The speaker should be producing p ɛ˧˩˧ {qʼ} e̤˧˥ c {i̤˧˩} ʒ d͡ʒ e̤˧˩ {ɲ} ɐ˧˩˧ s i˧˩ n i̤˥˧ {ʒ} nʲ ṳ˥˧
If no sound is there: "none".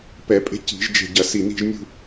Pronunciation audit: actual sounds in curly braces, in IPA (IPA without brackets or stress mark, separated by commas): pʼ, i̤˧˩˧, ɟ, ʒ